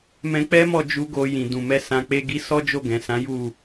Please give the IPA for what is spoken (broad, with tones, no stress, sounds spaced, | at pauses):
m ɛ̃˧ k͡p ɛ˦ m ɔ˦˨ d͡ʒ u˧ ɡ o˧ j ĩ˨ d ũ˨ m ɛ˧ s ã˧ k͡p e˧ ɡ i˧ s ɔ˦ d͡ʒ o˦˨ ɡ ɛ̃˨ s ã˨˦ j u˦˨